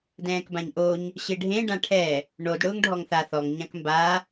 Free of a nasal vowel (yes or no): no